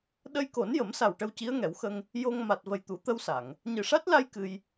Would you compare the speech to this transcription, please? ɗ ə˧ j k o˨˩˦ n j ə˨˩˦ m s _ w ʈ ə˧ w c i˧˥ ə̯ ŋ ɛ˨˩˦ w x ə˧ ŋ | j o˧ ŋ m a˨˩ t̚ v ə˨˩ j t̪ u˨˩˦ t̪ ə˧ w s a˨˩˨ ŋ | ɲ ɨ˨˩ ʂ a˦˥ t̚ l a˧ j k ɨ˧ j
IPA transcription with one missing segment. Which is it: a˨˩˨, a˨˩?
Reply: a˨˩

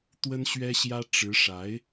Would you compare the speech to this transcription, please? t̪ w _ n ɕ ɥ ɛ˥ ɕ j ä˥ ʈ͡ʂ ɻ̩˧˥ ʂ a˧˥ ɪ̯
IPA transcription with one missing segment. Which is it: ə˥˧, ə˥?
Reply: ə˥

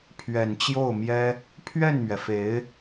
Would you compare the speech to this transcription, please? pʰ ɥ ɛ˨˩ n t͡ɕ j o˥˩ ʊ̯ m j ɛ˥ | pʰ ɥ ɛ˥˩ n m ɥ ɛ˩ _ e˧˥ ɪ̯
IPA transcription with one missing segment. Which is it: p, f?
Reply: f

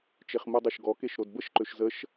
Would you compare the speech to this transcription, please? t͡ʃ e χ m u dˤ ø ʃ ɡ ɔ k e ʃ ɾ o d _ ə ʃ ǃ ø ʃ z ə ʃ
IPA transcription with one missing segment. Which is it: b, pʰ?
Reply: b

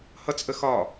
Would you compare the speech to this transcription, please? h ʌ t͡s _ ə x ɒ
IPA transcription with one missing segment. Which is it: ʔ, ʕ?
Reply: ʔ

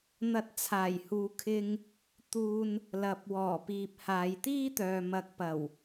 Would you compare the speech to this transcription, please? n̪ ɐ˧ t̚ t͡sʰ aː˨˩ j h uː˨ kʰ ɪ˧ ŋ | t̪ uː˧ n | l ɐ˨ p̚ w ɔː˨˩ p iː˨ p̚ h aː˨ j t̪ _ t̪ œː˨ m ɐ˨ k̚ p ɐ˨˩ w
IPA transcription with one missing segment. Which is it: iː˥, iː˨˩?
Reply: iː˥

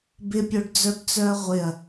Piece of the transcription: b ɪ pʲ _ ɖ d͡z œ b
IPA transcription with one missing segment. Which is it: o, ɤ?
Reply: o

